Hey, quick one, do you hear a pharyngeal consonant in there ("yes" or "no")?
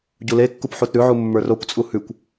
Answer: yes